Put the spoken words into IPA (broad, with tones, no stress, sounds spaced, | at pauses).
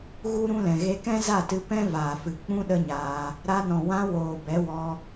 ɣ u˦ ɾ ũ˦ l ɛ̃˨ ɣ e˧ k ɛ̃˦ z a˦˨ t ɨ˧ p ɛ̃˦ v aː˨ f ɨ˨ k͡p ũ˦ ɗ ə˦ ɲ aː˧ | ɾ a˧ n ɔ̃˨ w ã˧ w oː˨ b ɛ˨˦ w ɔ˧